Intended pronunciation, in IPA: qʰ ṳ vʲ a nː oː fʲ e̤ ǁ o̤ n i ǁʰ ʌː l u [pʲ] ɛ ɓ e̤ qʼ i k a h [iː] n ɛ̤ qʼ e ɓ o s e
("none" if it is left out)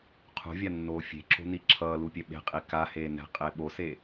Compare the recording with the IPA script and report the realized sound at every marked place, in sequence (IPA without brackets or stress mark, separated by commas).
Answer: pʲ, eː